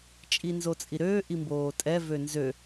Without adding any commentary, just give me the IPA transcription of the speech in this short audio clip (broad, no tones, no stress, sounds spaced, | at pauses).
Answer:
t͡ʃʼ i n z o t͡sʼ i ɾ øː ʔ i m b oː tʼ ɛ v ø n z ø